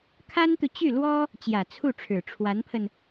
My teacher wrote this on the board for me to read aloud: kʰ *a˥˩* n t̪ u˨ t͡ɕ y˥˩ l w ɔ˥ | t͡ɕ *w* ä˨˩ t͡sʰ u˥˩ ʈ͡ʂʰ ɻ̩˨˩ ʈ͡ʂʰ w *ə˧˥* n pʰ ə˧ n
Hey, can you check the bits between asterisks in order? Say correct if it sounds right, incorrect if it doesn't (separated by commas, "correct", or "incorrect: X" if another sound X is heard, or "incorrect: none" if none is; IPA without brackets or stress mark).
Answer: incorrect: a˥, incorrect: j, incorrect: a˧˥